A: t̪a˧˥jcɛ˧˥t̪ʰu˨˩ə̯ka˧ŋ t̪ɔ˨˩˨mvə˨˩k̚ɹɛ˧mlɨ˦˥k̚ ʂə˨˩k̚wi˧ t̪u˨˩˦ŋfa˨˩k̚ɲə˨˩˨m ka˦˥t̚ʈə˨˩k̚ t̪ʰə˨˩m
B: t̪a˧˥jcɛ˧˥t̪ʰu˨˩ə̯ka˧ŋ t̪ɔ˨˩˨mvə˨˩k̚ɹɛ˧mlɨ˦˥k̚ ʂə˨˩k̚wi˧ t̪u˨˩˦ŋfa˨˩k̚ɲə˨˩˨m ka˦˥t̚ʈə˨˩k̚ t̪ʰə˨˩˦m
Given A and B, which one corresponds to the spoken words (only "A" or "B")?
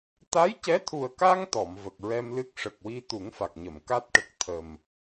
A